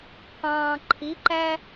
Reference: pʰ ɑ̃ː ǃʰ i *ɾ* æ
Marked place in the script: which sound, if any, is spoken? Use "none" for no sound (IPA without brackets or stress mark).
ǃ